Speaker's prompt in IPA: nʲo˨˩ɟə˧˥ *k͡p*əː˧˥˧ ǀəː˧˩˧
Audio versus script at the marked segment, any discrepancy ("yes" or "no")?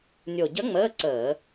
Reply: yes